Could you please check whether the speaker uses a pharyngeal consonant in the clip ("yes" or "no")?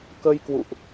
no